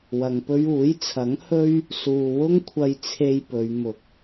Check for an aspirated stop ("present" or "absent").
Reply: present